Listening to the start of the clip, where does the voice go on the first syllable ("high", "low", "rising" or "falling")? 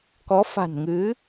rising